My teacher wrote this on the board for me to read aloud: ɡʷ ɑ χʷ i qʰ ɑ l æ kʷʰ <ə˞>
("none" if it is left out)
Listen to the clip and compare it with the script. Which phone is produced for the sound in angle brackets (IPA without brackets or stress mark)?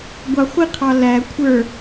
ə˞